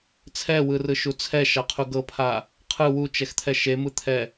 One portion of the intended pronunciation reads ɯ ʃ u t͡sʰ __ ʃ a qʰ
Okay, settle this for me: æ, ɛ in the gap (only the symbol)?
ɛ